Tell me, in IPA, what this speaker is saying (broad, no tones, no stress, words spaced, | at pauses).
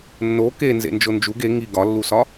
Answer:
nːo ke nzḛnd͡ʒond͡ʒuɡ e ŋi ɡɒlːusɒ